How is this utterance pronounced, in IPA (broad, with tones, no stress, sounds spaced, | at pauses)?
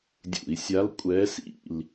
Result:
dʲ ṵ˧˩˧ i̯ sʲ a˧˥ l kʷʼ ɛ˧˥ s ḭ˦˨ l